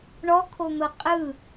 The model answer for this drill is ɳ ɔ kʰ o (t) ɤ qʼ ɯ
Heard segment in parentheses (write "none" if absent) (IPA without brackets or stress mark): n̪